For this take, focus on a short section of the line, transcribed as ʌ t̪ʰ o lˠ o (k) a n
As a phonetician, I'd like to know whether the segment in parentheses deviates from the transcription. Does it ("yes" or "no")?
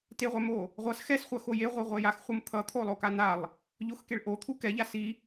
no